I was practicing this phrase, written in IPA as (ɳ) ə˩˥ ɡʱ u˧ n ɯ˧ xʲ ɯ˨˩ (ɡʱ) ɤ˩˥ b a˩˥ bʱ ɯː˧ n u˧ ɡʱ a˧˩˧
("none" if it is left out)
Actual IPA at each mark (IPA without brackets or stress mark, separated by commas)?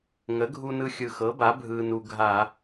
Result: ŋ, x